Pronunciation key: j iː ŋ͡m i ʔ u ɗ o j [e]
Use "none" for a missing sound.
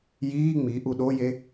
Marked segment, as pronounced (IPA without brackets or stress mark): e